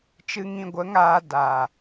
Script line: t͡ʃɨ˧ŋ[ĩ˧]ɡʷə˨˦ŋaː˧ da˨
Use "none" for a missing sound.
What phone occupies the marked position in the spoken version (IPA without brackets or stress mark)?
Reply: ĩ˧